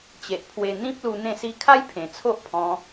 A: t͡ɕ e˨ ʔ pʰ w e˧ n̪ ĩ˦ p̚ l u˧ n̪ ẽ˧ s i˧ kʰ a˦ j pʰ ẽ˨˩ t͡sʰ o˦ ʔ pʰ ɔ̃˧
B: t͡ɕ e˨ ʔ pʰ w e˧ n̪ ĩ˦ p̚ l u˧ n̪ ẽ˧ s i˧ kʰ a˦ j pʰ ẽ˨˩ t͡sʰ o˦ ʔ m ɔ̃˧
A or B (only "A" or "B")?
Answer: A